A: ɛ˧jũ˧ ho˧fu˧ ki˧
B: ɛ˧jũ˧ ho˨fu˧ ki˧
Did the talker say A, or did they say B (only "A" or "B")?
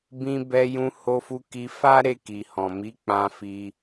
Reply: A